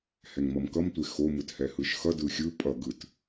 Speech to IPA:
h ɛ ŋ m ʌ m k ʌ m tʷ e x o m ɯ t h ɛ h ɯ ʃ x ʌ d ɯ xʲ ɯ pʼ ʌ ɡ ɯ t

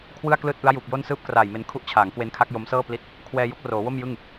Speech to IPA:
kʰ w ɯ˥˩ a̯ k l ɯː˥˩ t̚ ʔ ɯ˦˥ a̯ j uː˨˩ k̚ j o˥˩ n s ɯː˥˩ p̚ k r aː˨˩ j m e˧ n kʰ u˦˥ ʔ t͡ɕʰ aː˩˦ ŋ k w e˦˥ n kʰ a˦˥ k̚ j o˦˥ m s ɤː˥˩ p l i˦˥ t̚ | kʰ w ɛː˧ j o˦˥ k̚ r oː˩˦ w o˥˩ m j ɯ˥˩ ŋ

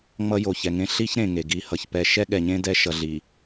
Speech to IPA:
ŋ͡m ʌ˦ j o˨ ç ɛ˨ ŋ ẽ˦ ɬ i˦ ç ɾ ẽ˨ ŋ e˨ ɡ i˨ h ʌ˨ ç p ɛ˨ ʃ ɛ˦ ɠ ɛ˨ ɲ ẽ˦ d ɛ˦ ʃ ʌ˨ ɮ i˨

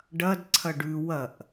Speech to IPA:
ɖ ɐ d ǀʰ ɐ ɖ ʉ w ɐ ʔ

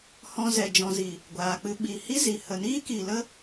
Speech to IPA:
h ɔ̃˧ z ɛ˨ d͡ʒ ɔ̃˨ z i˨ | ɡʷ aː˨ k͡p ɨ˧ ɓ i˨ h i˦ z i˨ h ə˨ n iː˦ k i˨ l ə˦

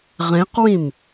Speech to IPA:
ʁ ẽ q w ĩ m

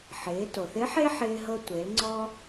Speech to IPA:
ħ ɪː˩˧ t o˩ θ ɪ˧˥ ħ e˥ ħ ɪː˧ ɦ ɤ˧ tʷ e˩˧ l ŋ͡ǀ ɔ˧

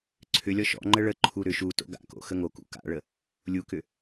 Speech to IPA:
ǀʰ ʏ lʲ ɔ ʃ ɔ̰ ŋ͡ǃ ə ɭ ə ǃʰ u ɾ ʏ ʃ u t o̰ ɡ a̰ k o̰ x ə ŋ o k ṵ k a̰ ɭ ə | lʲ u k ʏ

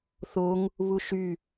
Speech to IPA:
θ o ŋ | β u ʃ y

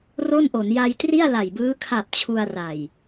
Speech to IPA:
r o˥˩ n ʔ o˩˦ n j a˧ j t r i˥˩ a̯ l a˨˩ j b ɯː˦˥ kʰ a˨˩ p̚ t͡ɕʰ u˧ a̯ r a˨˩ j

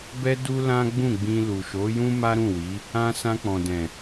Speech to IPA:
b ɛ˦ d u˦ l ã˦ ɡ͡b ũ˦˨ ɡ͡b ĩ˧ l u˨ ʃ o˨˦ j ũ˦ m a˦ ɾ ũ˦˨ w i˨˦ | ã˧ s ã˧ k͡p ɔ̃˨ d ɛ̃˨

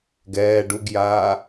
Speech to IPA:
ɡ ɛː ɖ u ɡ j aː

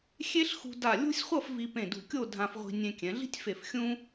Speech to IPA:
xʲ e˥ ɬ x ṳ˧ d a˧˩ lʲ o̤˥ sʲ χʷ ʌ˥˧ f v i˧ p ẽ˧˩ d ṳ˧˩ kʲ o˥˧ dʱ ã˧ f ʁʷ i̤˧ nʲ ẽ˧ kʲ ɛ̃˩˧ ɮ i̤˥ tʲ f e˧˩ f xʲ ũ˥

